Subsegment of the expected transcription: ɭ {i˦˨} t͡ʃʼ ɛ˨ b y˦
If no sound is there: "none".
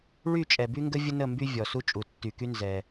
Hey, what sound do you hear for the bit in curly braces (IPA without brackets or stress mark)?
y˦˨